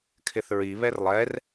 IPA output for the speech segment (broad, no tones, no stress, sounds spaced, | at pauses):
kʰ ɪ θ ɹ i β ɛ r lˠ ɛ r